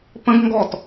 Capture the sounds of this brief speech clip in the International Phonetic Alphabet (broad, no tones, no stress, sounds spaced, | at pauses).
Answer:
p ə̃ ɡ ŋ ɡ ɔ t